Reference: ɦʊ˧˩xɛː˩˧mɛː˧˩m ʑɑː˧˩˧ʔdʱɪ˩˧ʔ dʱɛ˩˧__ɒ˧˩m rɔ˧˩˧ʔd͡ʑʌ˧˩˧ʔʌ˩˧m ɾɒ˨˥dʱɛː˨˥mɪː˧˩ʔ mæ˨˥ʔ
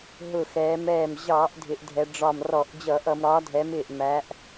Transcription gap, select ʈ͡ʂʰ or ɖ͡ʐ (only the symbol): ɖ͡ʐ